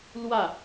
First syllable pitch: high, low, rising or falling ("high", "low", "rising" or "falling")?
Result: falling